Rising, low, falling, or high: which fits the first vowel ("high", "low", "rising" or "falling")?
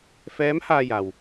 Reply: rising